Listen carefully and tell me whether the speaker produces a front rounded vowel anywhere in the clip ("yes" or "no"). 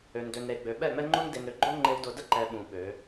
yes